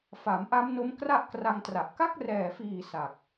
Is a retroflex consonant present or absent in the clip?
absent